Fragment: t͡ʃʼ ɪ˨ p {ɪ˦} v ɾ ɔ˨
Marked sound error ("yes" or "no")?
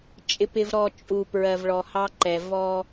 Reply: yes